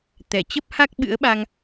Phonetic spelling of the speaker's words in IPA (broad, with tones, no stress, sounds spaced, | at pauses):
t̪ ɛ˧˩ t͡ɕ ə˦˥ p̚ h a˦˥ k̚ ɓ ɨ̰˧˥ ə̯ ɓ a˧ ŋ